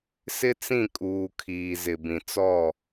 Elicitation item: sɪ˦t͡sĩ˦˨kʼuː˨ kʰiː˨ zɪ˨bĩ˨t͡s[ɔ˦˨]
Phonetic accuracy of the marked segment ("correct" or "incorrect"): correct